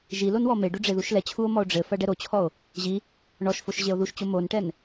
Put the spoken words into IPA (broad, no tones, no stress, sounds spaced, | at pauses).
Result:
ʒ i l o n w ɔ m e ɖ u ɖ͡ʐ e ð u ʃ l ɛ t͡ɕʰ u o̯ m ɔ o̯ ɖ͡ʐ ɘ f ɐ ɖ ɛ ɾ o t͡ɕʰ ɔ o̯ | ʑ i | ɳ ɔ ʃ f o ʃ ʑ e o̯ ð u ʃ t͡ɕ o m o n ʈ ɛ n